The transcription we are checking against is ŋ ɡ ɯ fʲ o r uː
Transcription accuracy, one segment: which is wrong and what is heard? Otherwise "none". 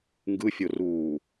none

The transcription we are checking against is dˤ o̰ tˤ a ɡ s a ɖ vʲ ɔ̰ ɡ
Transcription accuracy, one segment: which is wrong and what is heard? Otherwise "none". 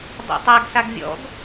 ɖ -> ɡ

